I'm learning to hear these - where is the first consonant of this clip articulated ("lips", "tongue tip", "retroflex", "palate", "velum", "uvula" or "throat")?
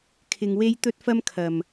velum